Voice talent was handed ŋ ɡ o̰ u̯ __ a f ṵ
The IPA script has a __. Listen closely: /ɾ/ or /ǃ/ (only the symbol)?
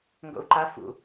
ǃ